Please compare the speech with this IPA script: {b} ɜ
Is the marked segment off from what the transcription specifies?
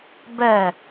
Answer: no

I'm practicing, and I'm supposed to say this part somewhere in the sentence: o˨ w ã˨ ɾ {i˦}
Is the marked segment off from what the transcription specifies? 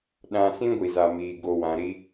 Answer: no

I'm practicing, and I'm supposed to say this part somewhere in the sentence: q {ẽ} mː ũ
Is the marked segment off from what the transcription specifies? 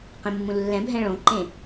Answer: no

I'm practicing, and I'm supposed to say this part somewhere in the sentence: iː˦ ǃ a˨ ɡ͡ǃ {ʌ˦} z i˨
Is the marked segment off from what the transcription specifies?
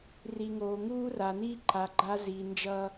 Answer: yes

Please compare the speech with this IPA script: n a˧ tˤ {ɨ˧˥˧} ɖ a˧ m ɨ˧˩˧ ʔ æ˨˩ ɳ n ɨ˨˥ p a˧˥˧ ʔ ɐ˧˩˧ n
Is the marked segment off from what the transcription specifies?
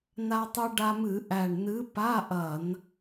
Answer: yes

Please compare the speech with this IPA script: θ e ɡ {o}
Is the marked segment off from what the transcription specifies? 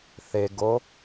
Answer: no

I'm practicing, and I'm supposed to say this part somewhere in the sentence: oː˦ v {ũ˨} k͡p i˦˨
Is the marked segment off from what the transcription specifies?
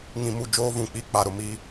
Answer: no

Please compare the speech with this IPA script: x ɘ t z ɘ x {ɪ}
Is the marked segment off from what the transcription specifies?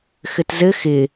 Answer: no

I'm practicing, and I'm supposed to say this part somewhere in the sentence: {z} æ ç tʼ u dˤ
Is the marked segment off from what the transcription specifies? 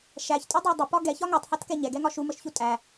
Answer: yes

